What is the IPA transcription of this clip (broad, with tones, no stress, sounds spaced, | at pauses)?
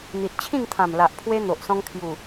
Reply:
n̪ i˨ t̚ t͡ɕʰ ĩ˥˧ ŋ t̪ʰ ã˨˩ m l a˨ ʔ pʰ w e˧ n̪ o˨ ʔ s ɔ̃˧ ŋ kʰ j u˨˩